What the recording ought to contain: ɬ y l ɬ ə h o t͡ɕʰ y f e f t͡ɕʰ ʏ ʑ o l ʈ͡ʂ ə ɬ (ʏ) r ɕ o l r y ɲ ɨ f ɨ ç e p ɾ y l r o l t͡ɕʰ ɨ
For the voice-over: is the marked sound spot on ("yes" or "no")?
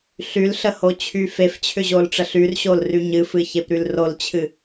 no